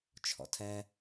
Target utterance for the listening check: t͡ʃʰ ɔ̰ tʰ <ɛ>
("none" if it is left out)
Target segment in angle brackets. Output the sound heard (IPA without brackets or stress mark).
ɛ